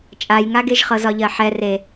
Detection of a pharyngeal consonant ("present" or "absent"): present